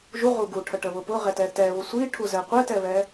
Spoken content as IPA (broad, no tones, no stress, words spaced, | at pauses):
ʒuʁu ɡuʈʰəʈəβʊ pʊʁɛtɛ tɛβʊ sʷiʈʰuzɛ qʷɛtɛβɛ